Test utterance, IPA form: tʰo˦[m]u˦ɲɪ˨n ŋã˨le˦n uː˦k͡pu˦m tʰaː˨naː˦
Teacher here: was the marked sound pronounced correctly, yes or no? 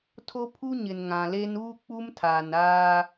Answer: no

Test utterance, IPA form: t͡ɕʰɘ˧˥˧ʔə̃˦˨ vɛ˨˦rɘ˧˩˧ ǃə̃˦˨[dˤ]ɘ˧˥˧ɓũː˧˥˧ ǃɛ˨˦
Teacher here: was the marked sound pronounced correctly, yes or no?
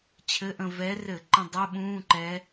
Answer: yes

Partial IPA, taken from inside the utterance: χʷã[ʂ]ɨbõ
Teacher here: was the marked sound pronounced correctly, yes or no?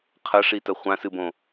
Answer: no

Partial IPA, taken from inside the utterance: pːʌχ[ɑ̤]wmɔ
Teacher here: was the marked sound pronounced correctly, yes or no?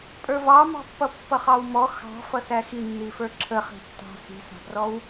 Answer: no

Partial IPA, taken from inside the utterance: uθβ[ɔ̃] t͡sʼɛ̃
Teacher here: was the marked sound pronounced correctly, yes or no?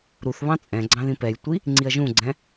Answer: no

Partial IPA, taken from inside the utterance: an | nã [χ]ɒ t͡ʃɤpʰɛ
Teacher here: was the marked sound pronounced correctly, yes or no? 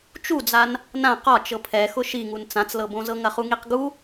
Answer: no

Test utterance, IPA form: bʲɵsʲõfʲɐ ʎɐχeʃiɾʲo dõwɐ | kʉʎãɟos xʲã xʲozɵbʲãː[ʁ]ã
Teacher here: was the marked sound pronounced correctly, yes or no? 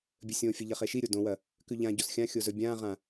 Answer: yes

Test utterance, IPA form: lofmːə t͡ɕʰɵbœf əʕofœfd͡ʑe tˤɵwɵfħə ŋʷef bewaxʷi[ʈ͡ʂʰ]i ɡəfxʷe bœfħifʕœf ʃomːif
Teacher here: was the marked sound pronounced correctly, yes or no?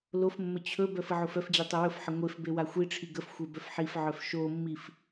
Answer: yes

